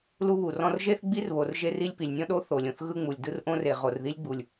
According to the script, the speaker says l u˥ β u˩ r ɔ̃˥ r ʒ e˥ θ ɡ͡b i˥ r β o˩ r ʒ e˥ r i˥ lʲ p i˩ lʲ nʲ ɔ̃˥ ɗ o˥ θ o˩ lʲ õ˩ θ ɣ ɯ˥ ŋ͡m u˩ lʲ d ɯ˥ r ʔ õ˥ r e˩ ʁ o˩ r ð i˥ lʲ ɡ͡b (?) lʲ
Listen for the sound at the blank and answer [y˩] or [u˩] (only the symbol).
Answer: u˩